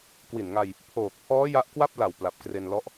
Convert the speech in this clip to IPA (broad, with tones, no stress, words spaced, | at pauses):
kwi˨˩nŋa˧j | pʰoː˨˩k̚pʰɔː˦˥ ja˦˥ʔkwa˥˩p̚la˨˩w pla˨˩p̚kre˧nlɔ˦˥ʔ